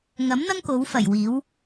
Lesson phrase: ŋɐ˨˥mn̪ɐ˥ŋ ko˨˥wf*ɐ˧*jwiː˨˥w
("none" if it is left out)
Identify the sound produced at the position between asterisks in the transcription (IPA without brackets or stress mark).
ɐ˨˩